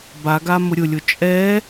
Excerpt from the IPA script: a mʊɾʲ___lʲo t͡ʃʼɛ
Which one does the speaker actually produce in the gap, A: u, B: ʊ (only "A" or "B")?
B